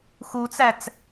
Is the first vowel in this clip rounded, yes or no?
yes